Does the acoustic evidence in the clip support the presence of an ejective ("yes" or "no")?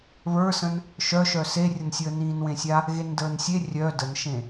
no